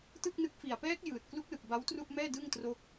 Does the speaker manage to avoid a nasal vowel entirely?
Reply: yes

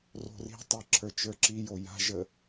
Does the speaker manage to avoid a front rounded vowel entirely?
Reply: yes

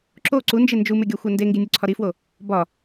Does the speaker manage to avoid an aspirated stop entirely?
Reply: no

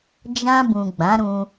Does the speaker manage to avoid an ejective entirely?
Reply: yes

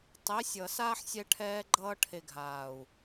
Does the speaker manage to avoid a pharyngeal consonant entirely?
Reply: no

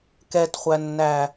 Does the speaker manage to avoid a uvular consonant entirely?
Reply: no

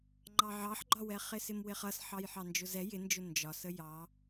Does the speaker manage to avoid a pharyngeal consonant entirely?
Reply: no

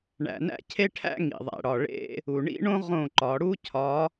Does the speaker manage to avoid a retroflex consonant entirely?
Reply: no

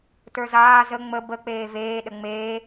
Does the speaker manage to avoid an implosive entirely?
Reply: no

